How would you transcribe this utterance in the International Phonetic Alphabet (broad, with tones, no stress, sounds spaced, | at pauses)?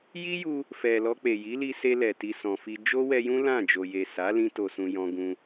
j i˦ j u˧ | f ɛ˨ l ɔ˧ k͡p e˨ j i˨˦ l i˧ s e˧ l ɛ˨ t i˨ s ɔ̃˨ f i˧ d͡ʒ o˦ w ɛ˧ j ũ˦ l ã˦˨ d͡ʒ o˨ j e˨ s a˨˦ l ĩ˧ t o˨ s ũ˨ j ɔ̃˧ ɡ ũ˧